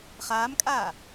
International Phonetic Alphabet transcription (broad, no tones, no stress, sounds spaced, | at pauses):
χ aː m kʼ aː